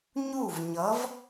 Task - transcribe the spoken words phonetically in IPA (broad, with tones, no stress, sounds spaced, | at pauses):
ɲ u˥˩ v ɲ ʌ˨˥ v